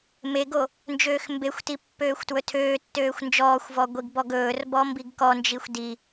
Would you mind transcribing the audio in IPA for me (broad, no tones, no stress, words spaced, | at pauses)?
meɡo | nd͡ʒøːxmbexʷti pːøːxʷtwɵtʰøːtːøːxʷ nd͡ʒɔːxʷvɔ ɡʷiɡbɔɡɵːrbɔ mbiɡkɔnd͡ʒixʷ di